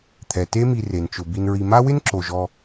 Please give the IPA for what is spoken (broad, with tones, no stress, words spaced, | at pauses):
t̪ʰɛ˩ te˦mi˨re˩nt͡ʃʊ˩ bi˨nɹi˨ma˥ wɪ˥nǁo˩ʒɔ˨